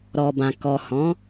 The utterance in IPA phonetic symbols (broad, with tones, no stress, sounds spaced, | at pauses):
ɾ ɔ˨ b ã˨ k ɔ˨ h ɔ̃˨˦